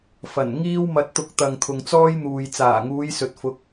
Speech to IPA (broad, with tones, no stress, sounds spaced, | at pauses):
f ɐ˨˩ n ŋ iː˥ w m ɐ˧ t̚ t̪ ʊ˧ k̚ t̪ ɐ˨ ŋ t̪ʰ ʊ˨ ŋ t͡s ɔː˥ j n̪ uː˨ j t͡s aː˨˩ ŋ uː˨˧ j s ɵ˨ t̚ f ʊ˨˥ k̚